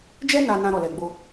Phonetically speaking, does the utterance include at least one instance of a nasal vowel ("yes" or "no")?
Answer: yes